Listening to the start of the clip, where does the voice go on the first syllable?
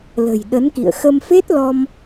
low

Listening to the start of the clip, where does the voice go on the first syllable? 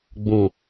low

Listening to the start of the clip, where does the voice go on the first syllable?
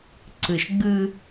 low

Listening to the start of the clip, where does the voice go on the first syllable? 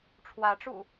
rising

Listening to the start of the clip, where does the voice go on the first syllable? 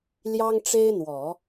high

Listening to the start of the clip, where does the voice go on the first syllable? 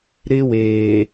high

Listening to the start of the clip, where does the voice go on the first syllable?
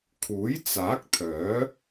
rising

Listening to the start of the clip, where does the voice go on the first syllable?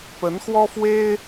rising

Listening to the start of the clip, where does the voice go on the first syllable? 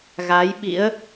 rising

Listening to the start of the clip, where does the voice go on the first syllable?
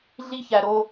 high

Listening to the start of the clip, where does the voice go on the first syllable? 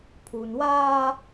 low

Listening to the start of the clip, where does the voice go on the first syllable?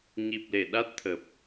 low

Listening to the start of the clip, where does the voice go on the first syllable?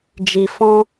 low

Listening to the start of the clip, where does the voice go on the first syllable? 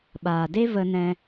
low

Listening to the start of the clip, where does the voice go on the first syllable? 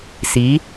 rising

